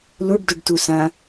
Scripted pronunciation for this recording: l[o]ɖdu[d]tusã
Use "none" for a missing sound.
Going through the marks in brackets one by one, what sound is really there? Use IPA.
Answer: u, ɖ

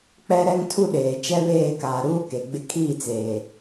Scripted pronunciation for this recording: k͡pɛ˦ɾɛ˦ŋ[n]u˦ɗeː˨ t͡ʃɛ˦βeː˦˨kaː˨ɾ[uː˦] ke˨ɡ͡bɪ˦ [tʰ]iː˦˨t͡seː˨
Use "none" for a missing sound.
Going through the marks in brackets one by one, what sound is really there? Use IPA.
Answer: tʰ, uː˦, kʰ

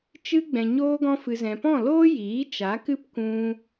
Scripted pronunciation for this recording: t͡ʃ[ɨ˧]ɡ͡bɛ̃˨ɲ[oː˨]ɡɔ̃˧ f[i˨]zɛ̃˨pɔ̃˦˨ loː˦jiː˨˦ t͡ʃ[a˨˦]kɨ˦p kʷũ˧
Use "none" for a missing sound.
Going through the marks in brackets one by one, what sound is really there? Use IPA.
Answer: ɨ˧, oː˧, ɨ˨, a˨˦

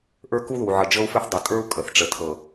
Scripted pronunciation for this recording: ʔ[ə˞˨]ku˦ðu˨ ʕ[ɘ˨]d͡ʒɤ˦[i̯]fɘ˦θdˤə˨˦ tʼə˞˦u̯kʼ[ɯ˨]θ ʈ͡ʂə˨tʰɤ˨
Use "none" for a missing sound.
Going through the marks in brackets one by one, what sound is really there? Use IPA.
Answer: ə˞˦, ɘ˨, u̯, ə˨

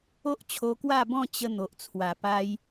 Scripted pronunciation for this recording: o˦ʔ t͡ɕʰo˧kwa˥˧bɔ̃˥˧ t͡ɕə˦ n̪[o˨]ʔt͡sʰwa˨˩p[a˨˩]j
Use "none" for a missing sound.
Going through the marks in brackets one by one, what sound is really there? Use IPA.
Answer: o˨, a˦

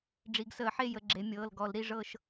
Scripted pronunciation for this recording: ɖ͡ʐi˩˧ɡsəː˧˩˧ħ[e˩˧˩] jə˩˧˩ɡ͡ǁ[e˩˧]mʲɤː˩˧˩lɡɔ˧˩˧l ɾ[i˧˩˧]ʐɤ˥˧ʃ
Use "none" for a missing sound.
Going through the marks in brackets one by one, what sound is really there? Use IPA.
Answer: e˥˧, e˩˧, i˥˧

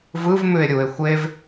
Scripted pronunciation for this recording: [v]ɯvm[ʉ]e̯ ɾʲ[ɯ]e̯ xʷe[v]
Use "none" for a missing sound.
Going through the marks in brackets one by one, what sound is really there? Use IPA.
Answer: v, ʉ, u, v

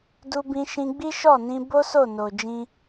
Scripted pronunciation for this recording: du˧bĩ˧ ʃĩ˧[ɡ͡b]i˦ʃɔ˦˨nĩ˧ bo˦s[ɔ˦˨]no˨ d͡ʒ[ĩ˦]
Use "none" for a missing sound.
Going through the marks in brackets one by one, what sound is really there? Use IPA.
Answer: ɡ͡b, o˦˨, ĩ˧

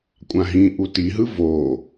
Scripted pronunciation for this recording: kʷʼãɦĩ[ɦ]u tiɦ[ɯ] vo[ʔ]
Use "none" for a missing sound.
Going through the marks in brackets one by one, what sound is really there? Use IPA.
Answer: ʔ, ɯ, none

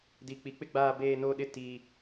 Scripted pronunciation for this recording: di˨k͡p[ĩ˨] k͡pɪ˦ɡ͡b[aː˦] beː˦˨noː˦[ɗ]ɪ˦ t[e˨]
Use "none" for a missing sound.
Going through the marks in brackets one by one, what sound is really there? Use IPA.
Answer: i˨, aː˦˨, ɗ, i˨

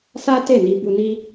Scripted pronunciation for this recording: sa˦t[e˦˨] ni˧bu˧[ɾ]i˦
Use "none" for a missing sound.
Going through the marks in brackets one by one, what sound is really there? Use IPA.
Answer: e˦˨, n

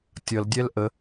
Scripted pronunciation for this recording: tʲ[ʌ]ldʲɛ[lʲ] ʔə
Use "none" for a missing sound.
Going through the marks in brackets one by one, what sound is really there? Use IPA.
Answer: ʌ, l

